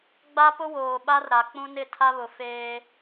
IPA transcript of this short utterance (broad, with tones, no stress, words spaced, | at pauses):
ɡ͡ba˦pʊ˦woː˨ ɓa˦rɾa˨k͡pũ˦ nɪ˦˨tʰa˦βʊ˨ feː˦